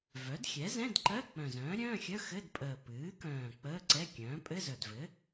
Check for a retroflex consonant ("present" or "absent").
absent